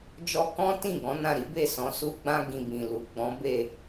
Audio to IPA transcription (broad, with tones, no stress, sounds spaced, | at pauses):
d͡ʒ ɔ˧ k ɔ̃˦ t ĩ˦˨ ɡ ɔ̃˨˦ n ã˦˨ ɾ i˨˦ b e˦˨ s ɔ̃˨˦ s u˦ ɡ͡b ã˦ ɡ ĩ˧ b ĩ˨ l u˨ ɡ͡b ɔ̃˨˦ b e˦˨